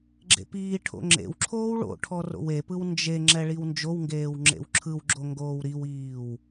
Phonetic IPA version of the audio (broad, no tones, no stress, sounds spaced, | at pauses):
ɡ͡ǁ ḛ p iː ʈʰ o̰ ŋ͡ǁ ḛ w ǁʰ oː w ɭ o̰ ʈʰ ɔ r o̰ w e p ɯ w n d͡ʒ e ŋ͡ǁ ɛ ɭ i w n d͡ʒ o w ŋ ɡ eː w ŋ͡ǁ ḛ w ǁʰ ɯ w ɡ͡ǁ o ŋ ɡ oː w ɾ i w iː w